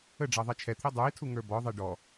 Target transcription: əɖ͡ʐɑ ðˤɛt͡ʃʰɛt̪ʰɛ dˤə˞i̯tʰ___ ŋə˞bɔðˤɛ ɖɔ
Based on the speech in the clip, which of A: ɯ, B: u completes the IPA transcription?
B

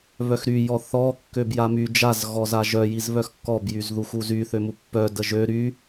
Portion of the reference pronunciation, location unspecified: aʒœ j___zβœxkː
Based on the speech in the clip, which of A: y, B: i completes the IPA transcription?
B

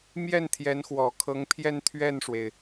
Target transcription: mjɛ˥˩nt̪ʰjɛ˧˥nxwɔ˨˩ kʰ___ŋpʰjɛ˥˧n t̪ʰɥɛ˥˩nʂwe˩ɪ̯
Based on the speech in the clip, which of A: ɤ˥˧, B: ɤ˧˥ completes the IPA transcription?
B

